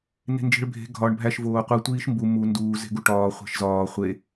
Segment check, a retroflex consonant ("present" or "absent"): present